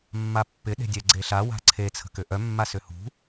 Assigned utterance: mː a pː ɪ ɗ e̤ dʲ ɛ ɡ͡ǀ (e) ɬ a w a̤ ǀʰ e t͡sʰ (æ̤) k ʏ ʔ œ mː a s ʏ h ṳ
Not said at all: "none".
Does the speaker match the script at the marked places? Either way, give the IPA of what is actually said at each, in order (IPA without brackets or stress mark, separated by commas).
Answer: e, ə̤